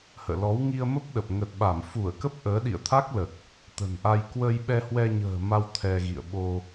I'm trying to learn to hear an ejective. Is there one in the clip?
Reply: no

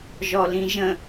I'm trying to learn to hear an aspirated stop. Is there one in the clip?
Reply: no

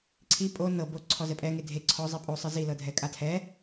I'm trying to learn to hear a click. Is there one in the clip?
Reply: yes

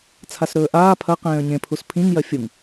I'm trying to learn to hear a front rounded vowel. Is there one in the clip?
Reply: no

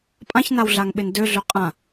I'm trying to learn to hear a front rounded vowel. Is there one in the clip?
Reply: yes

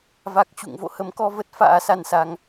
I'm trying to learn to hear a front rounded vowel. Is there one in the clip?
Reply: no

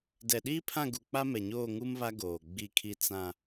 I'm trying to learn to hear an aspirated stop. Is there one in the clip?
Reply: yes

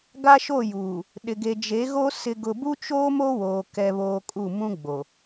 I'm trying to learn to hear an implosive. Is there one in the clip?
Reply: yes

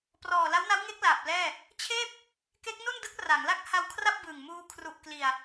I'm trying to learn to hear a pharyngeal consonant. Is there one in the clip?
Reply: no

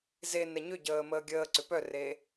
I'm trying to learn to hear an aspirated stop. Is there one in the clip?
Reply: no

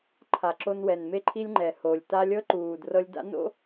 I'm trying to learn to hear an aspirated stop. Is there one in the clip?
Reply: yes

